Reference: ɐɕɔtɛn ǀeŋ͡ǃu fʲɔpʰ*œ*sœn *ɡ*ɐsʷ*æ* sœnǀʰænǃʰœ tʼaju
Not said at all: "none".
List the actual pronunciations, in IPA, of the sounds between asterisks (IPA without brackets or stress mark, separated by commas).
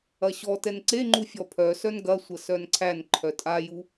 œ, ɡ, ɐ